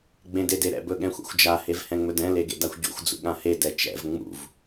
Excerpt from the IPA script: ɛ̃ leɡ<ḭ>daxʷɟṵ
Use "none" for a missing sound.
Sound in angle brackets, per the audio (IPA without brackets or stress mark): ḛ